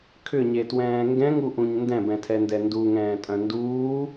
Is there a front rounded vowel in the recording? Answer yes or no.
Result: yes